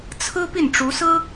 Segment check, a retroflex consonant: present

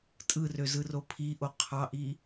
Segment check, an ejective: present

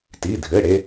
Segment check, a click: absent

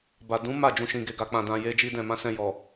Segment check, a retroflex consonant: absent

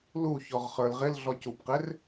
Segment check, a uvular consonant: present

